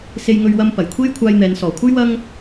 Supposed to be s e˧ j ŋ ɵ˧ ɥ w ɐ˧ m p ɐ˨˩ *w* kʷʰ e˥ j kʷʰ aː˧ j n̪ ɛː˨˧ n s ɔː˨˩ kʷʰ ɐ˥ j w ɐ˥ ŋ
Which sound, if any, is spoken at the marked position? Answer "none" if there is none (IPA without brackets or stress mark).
j